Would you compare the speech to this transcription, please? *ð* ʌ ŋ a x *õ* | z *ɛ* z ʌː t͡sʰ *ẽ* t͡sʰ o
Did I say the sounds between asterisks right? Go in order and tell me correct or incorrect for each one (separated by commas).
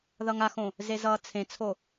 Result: correct, correct, incorrect, correct